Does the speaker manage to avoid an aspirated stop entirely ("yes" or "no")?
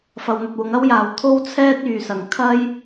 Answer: no